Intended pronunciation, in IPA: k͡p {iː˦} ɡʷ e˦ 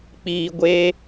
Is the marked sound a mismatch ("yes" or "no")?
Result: no